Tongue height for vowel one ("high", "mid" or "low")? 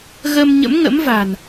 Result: mid